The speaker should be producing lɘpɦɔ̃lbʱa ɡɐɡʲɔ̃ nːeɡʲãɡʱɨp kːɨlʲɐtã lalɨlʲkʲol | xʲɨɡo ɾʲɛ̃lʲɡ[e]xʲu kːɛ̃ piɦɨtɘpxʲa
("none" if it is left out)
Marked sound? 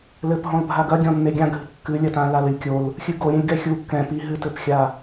ɛ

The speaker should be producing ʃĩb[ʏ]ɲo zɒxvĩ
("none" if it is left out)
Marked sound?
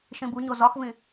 u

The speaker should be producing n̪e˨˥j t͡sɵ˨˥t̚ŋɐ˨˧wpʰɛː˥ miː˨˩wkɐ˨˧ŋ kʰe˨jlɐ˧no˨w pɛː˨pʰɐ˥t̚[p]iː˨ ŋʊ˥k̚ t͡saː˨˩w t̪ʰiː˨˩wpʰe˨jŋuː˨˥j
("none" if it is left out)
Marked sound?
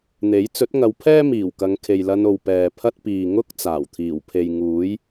p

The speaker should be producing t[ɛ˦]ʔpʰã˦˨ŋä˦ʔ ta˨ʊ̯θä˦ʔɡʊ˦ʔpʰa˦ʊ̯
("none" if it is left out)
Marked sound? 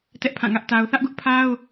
ɛ˦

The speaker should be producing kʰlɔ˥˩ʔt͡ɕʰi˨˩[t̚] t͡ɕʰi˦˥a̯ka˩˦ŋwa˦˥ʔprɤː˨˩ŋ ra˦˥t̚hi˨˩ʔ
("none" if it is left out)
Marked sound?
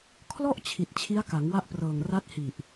t̚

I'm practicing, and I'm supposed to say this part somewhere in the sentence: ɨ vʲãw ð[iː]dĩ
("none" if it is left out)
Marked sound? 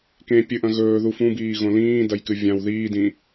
iː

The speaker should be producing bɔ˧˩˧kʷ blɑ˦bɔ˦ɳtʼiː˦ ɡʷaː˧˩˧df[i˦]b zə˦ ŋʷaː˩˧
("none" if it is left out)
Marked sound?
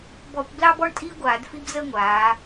i˦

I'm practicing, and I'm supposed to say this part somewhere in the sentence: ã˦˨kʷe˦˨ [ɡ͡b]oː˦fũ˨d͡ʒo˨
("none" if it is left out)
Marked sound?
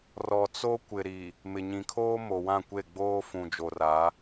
ɡ͡b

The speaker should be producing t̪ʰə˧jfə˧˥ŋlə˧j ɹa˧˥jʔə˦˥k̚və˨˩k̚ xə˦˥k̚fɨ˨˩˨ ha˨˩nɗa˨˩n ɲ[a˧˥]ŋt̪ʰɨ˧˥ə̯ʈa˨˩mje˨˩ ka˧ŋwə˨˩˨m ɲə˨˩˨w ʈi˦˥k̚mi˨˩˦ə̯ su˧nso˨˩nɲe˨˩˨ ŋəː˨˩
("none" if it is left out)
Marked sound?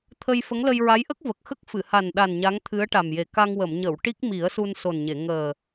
a˧˥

